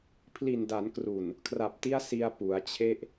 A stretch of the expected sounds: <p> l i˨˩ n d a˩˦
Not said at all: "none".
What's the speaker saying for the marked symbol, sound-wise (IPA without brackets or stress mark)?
pʰ